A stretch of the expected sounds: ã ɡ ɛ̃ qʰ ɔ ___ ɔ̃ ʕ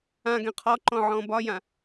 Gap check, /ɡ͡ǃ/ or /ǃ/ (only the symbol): ǃ